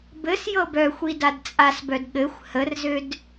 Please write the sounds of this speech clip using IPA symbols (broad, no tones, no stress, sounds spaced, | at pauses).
b ɘ s j ɤ b œ xʷ i d a d t͡sʼ a s b œ d ɠ ɘ xʷ h ə r z ø d